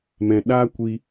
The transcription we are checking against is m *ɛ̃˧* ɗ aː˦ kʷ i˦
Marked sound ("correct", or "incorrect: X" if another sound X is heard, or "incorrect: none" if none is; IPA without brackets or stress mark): correct